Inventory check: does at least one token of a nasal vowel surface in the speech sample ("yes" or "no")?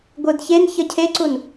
no